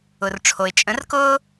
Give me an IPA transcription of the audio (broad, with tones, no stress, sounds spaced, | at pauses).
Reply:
ʊ˩ r ʈ͡ʂʰ o˩ ɪ̯ t͡ʃʼ ə̃˨˦ r k ʊː˦